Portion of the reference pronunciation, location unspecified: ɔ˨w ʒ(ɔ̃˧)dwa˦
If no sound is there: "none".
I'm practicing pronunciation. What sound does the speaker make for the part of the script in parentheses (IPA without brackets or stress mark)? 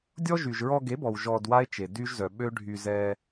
ɔ˧